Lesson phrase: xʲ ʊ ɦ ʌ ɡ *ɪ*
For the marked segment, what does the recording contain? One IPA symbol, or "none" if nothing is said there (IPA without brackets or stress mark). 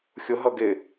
ɪ